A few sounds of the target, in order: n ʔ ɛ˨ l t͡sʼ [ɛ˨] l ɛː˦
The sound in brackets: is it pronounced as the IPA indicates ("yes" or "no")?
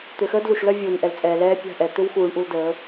no